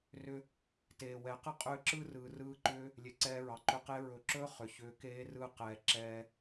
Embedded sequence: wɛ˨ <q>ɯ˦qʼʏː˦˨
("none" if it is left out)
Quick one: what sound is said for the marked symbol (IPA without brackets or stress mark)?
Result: q